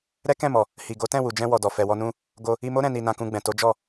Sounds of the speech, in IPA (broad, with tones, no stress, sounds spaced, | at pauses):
ɾ ɛ˦ k ɛ̃˦˨ m ɔ˨ | h i˨ ɡ o˨˦ t ɛ̃˦˨ w u˨ d͡ʒ ɛ̃˧ w ɔ˨ d ɔ˨ f ɛ˨ w ɔ˧ n ũ˧ | ɡ o˧ | i˧ m o˦ ɾ ɛ̃˦˨ n i˧ n ã˧ k ũ˧ ɡ͡b ɛ̃˨ t o˨˦ d͡ʒ ɔ˦˨